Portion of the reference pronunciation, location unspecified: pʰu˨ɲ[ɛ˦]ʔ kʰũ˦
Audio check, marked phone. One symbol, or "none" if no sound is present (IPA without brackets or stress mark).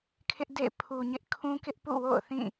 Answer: ɪ˦